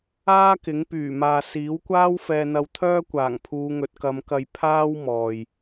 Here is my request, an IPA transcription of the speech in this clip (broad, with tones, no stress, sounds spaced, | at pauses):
aː˥ k ɪ˨˥ ŋ p yː˨˩ m aː˨ s iː˨˥ w kʷ aː˥ w f ɛː˧ n̪ ɐ˧ w t̪ʰ œː˥ kʷ aː˨˩ ŋ pʰ uː˨˧ ŋ ɵ˨˥ t̚ k ɐ˨˧ m k ɐ˧ j pʰ aː˥ w m ɔː˨ j